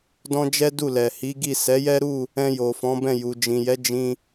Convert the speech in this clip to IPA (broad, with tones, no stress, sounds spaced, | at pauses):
d ɔ̃˦ d͡ʒ ɛ˦ d u˦˨ l ɛ˨ h i˨˦ ɡ i˦˨ s ɛ˨˦ j ɛ˦ ɾ u˦˨ | ɛ̃˧ j o˨ f ɔ̃˨˦ b ɛ̃˦˨ j u˨ d͡ʒ ĩ˨ j ɛ˨˦ d͡ʒ ĩ˧